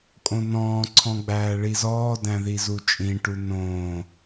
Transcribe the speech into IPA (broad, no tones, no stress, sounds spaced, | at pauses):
kʼ õ n ɔ̃ː ǀʰ ɔ̃ ɡ͡b æː ɭ i z ɔː d æ̃ ð i z u t͡ʃʼ ĩ ʈ u n õː